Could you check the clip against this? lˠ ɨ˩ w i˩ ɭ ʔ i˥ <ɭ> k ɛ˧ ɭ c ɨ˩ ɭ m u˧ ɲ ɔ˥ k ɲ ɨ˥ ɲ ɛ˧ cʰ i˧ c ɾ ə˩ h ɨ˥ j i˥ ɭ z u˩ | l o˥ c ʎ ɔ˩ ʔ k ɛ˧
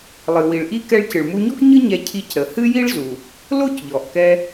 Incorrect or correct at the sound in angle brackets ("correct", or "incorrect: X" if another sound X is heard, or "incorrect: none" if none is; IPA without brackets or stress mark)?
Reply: incorrect: none